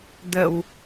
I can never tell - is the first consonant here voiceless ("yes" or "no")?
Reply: no